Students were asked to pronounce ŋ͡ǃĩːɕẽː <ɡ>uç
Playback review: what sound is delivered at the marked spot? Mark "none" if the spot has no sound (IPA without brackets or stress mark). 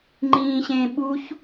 ɓ